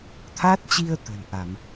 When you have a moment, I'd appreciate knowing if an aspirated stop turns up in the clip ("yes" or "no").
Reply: yes